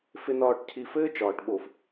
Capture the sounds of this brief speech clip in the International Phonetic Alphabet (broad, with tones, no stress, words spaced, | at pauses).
fɪ˨nɒː˨ʈcʰi˨ fɘː˦t͡ʃɒː˨ʈ ɓo˨f